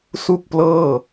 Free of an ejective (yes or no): yes